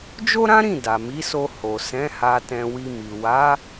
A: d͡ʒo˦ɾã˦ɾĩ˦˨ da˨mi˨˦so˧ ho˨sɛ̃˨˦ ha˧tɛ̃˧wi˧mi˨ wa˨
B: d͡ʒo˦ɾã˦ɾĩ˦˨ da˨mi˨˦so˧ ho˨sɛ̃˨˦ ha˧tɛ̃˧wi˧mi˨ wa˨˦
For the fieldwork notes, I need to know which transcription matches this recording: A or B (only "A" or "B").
B